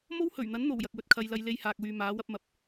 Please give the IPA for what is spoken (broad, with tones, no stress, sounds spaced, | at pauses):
m o˥ w h ɵ˨˩ ɥ n̪ ɐ˨˥ n n̪ o˨˩ w j ɐ˨ k̚ w ɵ˨ t̚ kʰ ɐ˨˧ j l ɐ˨˧ j l e˧ j h aː˨ k̚ w yː˨ m aː˨˥ w ɐ˥ p̚ m ɐ˨ p̚